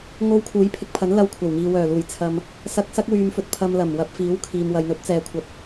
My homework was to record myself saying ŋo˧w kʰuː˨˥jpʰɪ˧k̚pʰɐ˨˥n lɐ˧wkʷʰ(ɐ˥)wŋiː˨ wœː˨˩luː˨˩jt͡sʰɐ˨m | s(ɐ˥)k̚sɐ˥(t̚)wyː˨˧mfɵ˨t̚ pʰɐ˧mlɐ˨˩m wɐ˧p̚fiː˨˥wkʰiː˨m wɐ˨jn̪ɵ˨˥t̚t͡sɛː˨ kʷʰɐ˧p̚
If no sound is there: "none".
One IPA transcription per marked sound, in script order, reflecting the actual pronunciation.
ɐ˨˩, ɐ˧, k̚

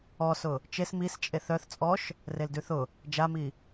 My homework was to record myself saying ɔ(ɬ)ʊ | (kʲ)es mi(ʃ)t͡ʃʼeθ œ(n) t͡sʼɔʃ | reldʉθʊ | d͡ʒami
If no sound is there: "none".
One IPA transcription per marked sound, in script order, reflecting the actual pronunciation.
s, t͡ʃ, s, θ

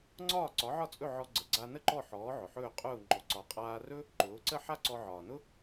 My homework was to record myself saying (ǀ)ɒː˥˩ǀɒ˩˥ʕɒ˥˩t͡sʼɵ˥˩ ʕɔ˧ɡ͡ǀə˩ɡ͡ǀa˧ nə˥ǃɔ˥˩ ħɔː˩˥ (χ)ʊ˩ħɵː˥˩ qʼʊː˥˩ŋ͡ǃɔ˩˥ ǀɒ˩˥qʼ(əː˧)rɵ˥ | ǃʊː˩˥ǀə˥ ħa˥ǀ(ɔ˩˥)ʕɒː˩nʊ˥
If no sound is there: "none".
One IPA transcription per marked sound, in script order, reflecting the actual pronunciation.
ŋ͡ǀ, ʕ, aː˧, ɔ˧

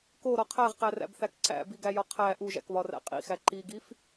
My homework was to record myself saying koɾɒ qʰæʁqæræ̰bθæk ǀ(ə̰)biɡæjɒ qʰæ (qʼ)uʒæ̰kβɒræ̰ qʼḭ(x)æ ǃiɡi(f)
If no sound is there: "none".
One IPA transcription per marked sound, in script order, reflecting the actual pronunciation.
æ̰, ʔ, x, f

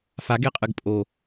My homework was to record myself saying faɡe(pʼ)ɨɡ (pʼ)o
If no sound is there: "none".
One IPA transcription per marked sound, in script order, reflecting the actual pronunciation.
qʼ, pʼ

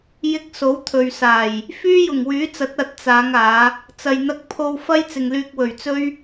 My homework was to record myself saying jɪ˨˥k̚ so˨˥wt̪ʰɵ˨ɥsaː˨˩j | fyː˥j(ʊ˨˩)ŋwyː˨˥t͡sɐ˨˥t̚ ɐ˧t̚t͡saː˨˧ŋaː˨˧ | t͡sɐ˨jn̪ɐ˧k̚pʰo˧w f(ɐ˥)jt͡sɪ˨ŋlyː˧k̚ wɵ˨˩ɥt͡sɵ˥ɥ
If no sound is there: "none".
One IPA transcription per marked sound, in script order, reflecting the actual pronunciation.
ʊ˨˩, ɐ˥

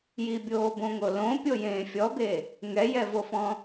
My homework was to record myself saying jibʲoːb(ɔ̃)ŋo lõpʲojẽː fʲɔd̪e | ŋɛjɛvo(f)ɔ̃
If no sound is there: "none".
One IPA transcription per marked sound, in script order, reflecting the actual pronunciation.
õ, f

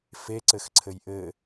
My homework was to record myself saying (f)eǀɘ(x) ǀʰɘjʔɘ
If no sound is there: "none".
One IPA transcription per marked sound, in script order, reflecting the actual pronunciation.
f, x

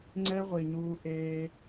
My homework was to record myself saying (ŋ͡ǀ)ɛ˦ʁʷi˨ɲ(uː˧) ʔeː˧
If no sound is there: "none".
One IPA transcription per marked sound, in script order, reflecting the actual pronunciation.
ŋ͡ǀ, uː˧

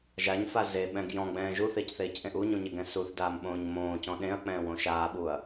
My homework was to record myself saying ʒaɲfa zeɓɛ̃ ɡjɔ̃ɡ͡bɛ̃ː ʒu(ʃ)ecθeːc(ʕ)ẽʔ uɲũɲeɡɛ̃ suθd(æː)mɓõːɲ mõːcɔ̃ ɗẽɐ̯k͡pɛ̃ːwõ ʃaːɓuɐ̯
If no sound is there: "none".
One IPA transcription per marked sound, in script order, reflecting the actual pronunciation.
θ, ʔ, aː

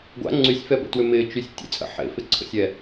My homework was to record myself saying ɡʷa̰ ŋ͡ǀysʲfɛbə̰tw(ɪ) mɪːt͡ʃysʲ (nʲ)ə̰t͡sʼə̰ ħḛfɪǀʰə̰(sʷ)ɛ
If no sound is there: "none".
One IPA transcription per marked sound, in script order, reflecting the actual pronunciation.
ʏ, tʲ, sʲ

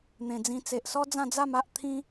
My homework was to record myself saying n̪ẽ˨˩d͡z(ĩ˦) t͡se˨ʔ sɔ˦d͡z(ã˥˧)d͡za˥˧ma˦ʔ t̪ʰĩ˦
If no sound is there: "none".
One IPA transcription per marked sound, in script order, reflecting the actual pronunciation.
ĩ˧, ã˥˧

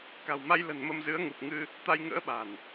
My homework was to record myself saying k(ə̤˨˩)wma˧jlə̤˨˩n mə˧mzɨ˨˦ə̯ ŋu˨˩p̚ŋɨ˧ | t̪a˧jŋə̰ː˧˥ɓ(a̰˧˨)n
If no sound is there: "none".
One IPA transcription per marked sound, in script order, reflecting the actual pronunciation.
a̤˨˩, a̤˨˩

